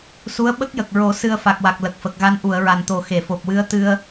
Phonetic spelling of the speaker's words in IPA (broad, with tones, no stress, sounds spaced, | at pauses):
s u˧˥ ə̯ ɓ ə˦˥ k̚ j ə˨˩ k̚ ɹ o˨˩˦ s ɨ˧ ə̯ f a˨˩ k̚ w a˨˩ k̚ l ə˨˩ k̚ f ə˨˩ k̚ ɣ a˧˥ n ʔ u˨˩˨ ə̯ ɹ a˨˩ n t̪ o˨˩ x e˨˩˨ f o˨˩ p̚ w ɨ˧˥ ə̯ t̪ ɨ˧ ə̯